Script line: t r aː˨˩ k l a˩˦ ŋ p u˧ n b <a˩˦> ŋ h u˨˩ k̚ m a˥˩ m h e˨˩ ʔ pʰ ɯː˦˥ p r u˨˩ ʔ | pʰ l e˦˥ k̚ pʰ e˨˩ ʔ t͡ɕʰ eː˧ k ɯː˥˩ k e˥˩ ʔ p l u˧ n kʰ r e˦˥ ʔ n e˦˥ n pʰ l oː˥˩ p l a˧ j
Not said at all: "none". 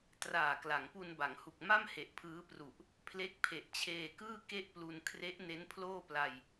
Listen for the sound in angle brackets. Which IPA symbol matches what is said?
a˩˦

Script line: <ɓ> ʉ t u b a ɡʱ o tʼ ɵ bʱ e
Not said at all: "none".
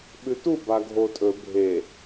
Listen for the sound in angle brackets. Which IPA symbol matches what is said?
ɓ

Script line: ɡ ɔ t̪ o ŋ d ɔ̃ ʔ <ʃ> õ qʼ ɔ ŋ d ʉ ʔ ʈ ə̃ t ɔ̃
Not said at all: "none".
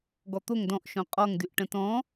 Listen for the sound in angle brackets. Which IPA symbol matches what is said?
ʃ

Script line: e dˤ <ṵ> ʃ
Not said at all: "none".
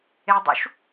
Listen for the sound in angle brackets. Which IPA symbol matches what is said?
ṵ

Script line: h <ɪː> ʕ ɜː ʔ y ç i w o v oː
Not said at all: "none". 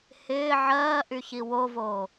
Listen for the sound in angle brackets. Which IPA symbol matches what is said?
ɪː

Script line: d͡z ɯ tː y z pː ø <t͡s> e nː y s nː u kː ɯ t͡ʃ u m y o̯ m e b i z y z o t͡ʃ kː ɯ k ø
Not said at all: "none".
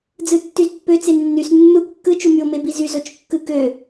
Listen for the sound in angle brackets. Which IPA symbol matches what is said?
t͡s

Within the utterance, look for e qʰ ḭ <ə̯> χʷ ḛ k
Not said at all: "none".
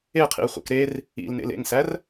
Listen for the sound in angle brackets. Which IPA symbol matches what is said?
ə̯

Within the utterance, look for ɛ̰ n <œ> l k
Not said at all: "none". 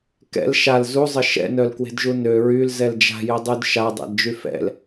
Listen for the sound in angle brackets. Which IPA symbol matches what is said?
œ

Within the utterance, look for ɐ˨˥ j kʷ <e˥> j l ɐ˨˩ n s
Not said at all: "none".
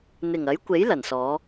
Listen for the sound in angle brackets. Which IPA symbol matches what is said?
e˨˥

